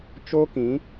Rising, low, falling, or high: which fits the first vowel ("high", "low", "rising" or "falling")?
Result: high